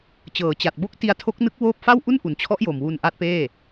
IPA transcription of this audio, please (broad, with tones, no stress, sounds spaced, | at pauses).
t͡ɕ ɤː˩˦ t͡ɕ a˨˩ t̚ b o˦˥ k̚ t i˧ a̯ tʰ o˦˥ k̚ n ɯ˦˥ k̚ w oː˥˩ p̚ f a˥˩ w ʔ u˥˩ n ʔ u˩˦ n t͡ɕʰ ɔ˦˥ ʔ j o˨˩ m w u˧ n ʔ a˦˥ t̚ p eː˥˩